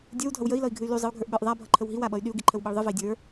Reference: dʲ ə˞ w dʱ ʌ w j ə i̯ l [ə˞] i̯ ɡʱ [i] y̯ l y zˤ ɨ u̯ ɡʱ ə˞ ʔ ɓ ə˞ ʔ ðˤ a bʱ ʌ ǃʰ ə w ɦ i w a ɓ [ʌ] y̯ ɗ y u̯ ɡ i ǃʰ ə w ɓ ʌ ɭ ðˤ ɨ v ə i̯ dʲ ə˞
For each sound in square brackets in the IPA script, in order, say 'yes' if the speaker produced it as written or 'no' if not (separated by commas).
no, no, yes